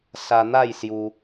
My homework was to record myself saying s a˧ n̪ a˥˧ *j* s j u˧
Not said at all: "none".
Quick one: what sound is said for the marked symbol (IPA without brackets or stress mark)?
j